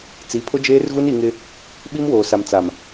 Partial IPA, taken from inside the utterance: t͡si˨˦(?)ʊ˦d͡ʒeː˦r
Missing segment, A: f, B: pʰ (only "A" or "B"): B